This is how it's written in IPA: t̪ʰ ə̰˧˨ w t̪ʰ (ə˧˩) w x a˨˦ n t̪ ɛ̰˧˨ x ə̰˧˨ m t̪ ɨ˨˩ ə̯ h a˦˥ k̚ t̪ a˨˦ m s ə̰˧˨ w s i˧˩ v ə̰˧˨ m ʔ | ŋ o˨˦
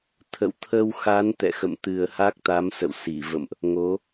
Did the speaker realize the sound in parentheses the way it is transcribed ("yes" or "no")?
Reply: no